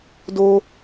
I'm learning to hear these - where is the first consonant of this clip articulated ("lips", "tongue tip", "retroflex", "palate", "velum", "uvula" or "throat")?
tongue tip